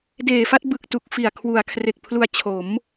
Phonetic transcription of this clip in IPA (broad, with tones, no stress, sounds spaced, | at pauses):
d eː˨˩ f a˥˩ t̚ b ɯ˨˩ k̚ t u˨˩ k̚ f i˨˩ a̯ kʰ w u˩˦ a̯ kʰ r e˨˩ k̚ pʰ l u˧ a̯ t͡ɕʰ o˩˦ m